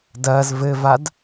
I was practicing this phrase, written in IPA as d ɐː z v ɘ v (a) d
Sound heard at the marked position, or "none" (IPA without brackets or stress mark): a